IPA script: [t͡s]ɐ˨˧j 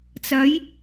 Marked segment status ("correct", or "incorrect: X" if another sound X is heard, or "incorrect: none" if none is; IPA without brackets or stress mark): correct